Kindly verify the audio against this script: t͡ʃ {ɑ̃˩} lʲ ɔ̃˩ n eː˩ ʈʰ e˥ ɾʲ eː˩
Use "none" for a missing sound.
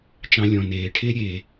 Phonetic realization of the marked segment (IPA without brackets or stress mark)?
ɑ̃˧